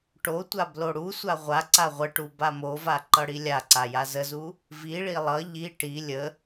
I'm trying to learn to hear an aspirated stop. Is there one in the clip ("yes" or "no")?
no